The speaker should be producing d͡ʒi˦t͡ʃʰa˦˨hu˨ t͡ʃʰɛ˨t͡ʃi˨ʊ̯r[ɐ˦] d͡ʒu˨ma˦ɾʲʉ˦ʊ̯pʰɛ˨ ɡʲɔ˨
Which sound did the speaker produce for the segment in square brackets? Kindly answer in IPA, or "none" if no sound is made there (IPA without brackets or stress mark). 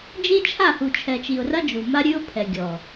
ɐ˦